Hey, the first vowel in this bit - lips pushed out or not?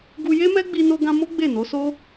yes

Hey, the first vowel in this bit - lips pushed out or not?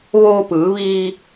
yes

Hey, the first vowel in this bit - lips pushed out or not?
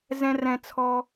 no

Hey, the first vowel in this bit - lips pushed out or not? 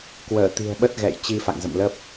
no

